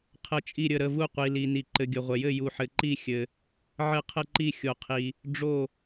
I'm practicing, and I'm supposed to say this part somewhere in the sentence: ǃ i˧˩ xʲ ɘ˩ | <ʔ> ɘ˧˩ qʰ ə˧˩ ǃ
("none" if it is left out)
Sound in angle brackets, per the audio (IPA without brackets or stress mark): ʕ